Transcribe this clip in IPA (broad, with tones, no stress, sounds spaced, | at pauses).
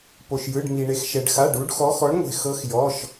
p o˧ ʃ j ɯ˧˥˧ ɖ m i˧ ɳ e˧ x ʃ ɛ˧ ɖ x a˧˥˧ ɖ u˧˥ ɖ x ɔ˧˥ x ɔ˧˥ ɳ ŋʷ e̤˧˩ x ɤ˧˥ x j ɔ˧˥˧ ʃ